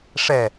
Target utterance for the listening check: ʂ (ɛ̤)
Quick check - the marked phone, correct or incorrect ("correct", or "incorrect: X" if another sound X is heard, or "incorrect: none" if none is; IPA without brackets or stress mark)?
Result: incorrect: ɛ